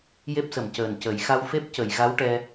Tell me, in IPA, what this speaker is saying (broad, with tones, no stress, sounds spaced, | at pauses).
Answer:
j e˦˥ p̚ s ə˨˩ m c əː˨˩ n c ə˨˩˦ j x a˧ w f e˦˥ p̚ c ə˨˩˨ j ɣ a˧˥ w ʈ ɛ˧